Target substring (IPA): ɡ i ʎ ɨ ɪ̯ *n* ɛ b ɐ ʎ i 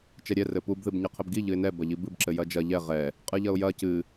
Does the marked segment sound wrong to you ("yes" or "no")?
no